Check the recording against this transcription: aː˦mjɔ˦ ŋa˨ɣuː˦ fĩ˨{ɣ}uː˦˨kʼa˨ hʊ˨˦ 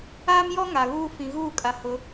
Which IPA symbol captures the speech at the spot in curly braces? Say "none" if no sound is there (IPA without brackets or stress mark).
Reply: ɣ